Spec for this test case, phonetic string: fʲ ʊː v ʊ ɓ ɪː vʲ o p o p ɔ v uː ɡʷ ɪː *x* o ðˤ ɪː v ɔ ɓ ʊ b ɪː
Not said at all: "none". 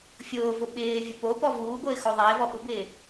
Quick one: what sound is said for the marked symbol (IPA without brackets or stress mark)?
x